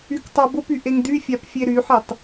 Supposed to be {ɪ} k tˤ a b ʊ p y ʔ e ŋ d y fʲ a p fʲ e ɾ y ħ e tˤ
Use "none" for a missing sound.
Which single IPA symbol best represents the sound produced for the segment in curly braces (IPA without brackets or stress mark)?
y